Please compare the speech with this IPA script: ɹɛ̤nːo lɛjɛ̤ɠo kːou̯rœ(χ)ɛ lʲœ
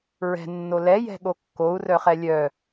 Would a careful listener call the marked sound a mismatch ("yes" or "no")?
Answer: no